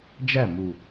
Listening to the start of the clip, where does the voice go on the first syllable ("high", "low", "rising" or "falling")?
falling